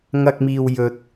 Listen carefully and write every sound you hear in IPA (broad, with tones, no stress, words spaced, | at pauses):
ŋɐ˧k̚miː˨w jɵ˨˥t̚